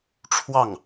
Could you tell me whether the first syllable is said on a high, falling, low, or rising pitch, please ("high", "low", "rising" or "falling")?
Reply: falling